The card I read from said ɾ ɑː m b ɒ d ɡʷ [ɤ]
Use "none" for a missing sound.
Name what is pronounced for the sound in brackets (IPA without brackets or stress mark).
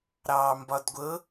ɤ